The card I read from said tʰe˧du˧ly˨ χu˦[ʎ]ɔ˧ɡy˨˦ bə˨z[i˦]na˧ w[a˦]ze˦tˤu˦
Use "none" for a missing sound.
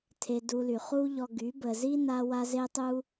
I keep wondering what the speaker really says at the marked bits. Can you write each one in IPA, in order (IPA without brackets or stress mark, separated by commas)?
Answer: ʎ, i˦, a˦